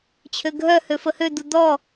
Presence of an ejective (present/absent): absent